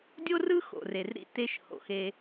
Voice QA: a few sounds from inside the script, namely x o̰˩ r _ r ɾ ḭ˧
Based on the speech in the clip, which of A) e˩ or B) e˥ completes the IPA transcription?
A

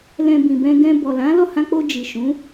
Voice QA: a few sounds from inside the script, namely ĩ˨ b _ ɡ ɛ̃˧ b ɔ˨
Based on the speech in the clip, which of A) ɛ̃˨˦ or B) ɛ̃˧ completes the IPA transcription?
B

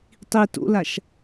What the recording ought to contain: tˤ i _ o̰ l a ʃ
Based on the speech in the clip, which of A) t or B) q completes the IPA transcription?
A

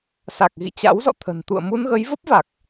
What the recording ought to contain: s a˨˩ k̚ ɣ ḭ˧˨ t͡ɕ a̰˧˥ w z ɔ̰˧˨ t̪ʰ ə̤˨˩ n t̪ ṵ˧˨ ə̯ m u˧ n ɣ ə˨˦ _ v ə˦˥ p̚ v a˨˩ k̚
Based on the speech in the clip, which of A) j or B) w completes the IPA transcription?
A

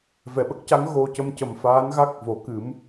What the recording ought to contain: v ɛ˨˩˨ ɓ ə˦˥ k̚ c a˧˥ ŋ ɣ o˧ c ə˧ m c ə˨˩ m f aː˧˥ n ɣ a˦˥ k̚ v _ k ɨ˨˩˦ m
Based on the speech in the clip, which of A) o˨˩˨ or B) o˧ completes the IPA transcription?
A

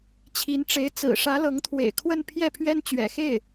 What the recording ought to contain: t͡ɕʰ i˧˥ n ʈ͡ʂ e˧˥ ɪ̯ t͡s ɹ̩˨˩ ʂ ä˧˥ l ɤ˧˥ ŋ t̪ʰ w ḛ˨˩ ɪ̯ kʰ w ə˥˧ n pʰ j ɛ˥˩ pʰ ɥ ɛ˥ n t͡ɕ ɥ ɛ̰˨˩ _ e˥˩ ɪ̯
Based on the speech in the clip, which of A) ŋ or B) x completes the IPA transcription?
B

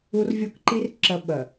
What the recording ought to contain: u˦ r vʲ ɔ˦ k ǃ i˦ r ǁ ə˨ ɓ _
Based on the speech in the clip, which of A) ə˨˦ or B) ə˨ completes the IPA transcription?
B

